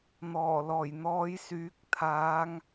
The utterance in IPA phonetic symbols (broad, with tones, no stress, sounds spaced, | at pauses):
n̪ ɔː˨˩ l ɔː˨˩ j n̪ ɔː˨˧ j s yː˨˥ k̚ t̪ʰ aː˨˧ ŋ